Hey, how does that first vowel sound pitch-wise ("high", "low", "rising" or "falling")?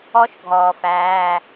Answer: high